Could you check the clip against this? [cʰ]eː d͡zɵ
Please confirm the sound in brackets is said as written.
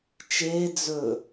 no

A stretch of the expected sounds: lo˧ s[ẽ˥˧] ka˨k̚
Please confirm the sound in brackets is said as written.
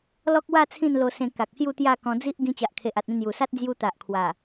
no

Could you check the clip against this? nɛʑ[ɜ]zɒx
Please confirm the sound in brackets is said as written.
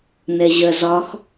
yes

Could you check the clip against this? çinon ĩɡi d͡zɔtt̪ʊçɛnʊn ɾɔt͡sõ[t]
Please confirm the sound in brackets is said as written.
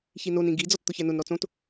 yes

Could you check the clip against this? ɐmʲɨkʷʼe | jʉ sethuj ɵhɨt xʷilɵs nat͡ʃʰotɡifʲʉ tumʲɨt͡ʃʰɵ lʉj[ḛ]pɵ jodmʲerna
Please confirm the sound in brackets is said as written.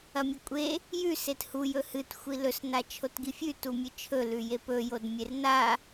no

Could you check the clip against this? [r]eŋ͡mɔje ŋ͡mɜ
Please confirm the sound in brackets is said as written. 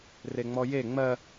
yes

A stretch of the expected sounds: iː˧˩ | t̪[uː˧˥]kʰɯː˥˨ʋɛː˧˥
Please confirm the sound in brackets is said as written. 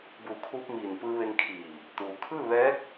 no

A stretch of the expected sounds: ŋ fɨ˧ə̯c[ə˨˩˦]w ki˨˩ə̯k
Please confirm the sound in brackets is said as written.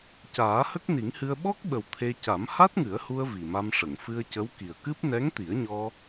no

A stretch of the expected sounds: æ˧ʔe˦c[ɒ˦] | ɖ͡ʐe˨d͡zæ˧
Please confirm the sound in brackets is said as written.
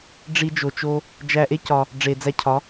no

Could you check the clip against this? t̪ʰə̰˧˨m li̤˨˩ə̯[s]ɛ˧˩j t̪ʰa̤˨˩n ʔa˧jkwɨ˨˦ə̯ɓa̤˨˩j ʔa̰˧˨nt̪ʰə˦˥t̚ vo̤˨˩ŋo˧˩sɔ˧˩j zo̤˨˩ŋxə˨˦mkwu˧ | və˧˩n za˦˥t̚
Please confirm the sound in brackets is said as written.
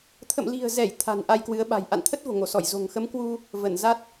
no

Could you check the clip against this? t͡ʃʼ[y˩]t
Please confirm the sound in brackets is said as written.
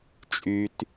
yes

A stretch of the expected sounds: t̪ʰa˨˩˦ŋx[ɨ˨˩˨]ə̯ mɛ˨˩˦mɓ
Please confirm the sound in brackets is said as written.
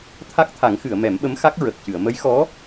yes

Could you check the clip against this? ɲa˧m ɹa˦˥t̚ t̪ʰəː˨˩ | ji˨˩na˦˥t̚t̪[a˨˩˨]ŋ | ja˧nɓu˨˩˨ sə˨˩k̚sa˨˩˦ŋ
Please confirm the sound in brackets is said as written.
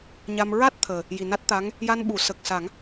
no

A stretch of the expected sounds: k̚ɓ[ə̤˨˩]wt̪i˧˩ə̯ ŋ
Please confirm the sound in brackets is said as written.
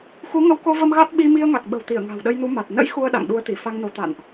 yes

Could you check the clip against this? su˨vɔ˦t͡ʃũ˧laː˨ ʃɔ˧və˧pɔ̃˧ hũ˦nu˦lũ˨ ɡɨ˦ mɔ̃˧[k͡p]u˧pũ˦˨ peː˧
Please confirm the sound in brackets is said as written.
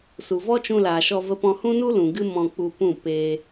yes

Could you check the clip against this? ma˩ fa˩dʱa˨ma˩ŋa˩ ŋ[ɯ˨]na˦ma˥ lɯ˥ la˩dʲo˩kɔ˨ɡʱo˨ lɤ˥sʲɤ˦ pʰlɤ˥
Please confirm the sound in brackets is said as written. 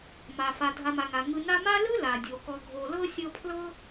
yes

